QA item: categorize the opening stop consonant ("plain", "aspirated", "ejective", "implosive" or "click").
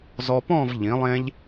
plain